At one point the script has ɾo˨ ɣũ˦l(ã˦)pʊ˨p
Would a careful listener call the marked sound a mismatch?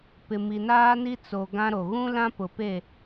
no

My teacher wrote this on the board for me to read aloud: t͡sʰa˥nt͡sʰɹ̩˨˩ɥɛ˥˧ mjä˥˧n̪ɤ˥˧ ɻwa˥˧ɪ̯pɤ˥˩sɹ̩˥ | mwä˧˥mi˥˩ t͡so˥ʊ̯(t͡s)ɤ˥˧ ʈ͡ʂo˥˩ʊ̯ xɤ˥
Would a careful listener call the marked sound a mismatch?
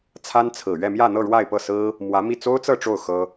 no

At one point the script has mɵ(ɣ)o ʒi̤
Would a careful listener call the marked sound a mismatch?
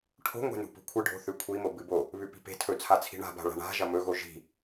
no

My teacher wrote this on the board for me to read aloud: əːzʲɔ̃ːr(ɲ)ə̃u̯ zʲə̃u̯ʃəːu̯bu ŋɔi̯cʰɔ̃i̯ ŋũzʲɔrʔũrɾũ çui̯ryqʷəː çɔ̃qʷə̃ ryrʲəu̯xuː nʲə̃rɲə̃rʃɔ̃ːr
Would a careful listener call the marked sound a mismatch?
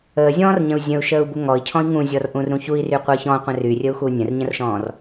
no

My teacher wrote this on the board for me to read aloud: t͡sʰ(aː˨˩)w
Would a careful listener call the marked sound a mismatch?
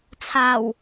no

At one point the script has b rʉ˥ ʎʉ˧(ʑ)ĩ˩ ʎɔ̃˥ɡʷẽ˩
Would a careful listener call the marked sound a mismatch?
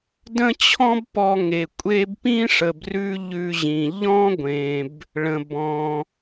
no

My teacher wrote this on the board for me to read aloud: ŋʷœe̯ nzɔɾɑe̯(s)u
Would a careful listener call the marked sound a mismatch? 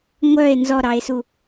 no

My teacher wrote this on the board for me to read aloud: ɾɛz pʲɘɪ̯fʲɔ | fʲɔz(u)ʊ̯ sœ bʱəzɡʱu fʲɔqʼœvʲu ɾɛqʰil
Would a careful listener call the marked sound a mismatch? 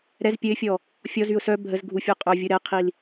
yes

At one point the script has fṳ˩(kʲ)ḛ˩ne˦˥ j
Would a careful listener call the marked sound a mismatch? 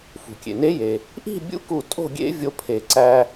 no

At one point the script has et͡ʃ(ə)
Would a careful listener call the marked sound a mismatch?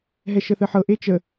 no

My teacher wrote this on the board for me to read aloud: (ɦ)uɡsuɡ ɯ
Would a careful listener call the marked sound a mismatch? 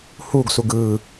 yes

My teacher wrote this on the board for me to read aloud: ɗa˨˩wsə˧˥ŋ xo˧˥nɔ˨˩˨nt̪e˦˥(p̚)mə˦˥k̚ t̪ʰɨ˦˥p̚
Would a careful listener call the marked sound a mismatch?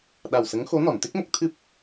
yes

